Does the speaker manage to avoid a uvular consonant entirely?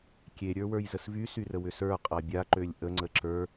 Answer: no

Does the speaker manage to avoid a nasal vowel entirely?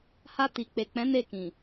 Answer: no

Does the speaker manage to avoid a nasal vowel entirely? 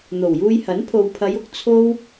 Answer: yes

